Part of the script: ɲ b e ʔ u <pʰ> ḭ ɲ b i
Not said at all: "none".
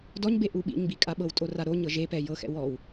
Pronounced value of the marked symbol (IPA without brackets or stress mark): ɓ